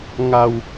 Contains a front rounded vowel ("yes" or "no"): no